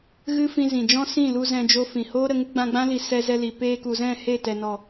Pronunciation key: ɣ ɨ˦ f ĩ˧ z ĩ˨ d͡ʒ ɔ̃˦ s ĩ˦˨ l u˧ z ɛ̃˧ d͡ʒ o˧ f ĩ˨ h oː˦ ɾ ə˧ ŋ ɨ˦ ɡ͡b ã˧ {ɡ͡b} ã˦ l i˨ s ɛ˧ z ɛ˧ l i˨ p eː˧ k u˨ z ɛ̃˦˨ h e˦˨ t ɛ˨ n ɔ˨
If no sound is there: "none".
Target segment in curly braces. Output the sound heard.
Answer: ɡ͡b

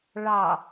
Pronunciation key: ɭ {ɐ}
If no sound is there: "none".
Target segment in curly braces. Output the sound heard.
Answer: ɑ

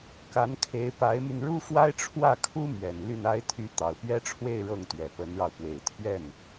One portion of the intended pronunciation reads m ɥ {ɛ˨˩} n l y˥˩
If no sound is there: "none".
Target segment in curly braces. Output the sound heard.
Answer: ɛ˨˩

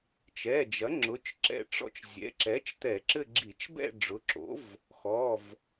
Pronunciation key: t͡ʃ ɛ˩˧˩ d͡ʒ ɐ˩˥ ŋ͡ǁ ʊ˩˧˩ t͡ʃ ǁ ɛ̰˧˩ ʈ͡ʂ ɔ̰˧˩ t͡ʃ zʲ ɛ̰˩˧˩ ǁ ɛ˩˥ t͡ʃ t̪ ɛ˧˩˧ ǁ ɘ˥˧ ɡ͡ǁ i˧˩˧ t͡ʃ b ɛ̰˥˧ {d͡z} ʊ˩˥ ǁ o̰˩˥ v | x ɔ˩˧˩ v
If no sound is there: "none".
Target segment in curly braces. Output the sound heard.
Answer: ɖ͡ʐ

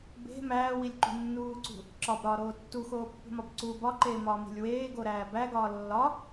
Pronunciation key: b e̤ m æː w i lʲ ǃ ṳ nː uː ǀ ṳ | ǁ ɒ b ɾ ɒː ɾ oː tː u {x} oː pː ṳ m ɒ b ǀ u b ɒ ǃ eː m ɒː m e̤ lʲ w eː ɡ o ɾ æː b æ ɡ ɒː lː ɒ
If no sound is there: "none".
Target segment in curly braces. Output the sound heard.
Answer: x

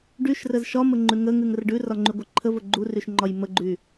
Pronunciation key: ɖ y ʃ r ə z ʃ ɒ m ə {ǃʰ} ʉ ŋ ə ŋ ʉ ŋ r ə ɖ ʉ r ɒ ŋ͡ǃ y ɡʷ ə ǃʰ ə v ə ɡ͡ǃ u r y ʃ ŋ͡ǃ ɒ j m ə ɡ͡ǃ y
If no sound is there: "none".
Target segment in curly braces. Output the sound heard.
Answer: ŋ͡ǃ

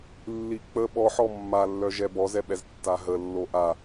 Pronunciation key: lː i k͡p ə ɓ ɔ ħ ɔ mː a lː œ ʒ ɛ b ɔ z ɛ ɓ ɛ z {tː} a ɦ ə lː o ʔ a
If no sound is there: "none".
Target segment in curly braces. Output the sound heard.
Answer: tː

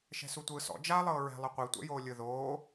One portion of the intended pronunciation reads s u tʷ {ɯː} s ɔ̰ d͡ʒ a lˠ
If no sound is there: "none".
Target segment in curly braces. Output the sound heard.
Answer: ɯː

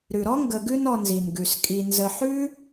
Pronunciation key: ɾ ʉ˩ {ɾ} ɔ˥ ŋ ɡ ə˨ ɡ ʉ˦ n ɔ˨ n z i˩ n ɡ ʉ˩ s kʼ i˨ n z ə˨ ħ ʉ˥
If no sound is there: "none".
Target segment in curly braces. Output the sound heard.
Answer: ɾ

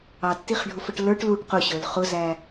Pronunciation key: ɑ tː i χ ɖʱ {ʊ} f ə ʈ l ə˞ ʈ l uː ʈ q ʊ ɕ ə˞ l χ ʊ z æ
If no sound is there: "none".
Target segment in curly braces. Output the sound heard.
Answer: ʊ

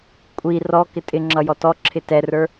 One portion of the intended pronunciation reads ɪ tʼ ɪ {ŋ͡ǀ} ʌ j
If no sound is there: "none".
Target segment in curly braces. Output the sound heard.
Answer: ŋ͡ǁ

